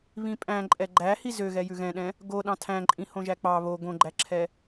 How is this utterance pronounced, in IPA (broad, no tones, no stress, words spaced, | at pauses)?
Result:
βĩpʼæ̃ ǃʼɛɡ͡ǃæhi zøɣɛ jʉɣɛ̃ɗɛ̃ | ɡo ɗɑ̃tʰæ̃ ǃʼĩhõʒæk͡pɑ βo ɡõɡ͡ǃæǁʰɛ